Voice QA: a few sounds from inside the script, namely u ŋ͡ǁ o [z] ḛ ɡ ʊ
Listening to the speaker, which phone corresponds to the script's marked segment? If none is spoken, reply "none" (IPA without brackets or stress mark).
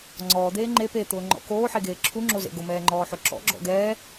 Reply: z